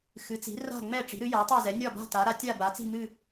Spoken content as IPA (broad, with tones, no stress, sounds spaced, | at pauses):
x ɨ˩˥ t͡s i̤˩˥ r a̤˥˨ ŋ͡m ɛ˥˨ ʈ͡ʂ i̤˩˥ ɾ ɨ˩˥ j a˩˥ tˤ a˥˨ z ɛ˩˥ nʲ ɒ˥˨ b a̤˥˨ t a˩˥ ɾ a˩˥ tʲ a˥˨ b a˩˥ t͡s i̤˥˨ m ɨ˥˨